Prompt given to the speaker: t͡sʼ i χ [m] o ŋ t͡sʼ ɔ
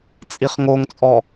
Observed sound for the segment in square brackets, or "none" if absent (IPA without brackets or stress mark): ŋ